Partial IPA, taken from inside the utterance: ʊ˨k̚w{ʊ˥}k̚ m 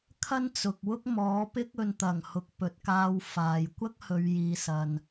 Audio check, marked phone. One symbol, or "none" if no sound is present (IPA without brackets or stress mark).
ʊ˥